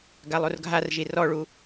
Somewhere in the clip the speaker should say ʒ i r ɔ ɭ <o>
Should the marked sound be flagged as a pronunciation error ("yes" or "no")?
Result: yes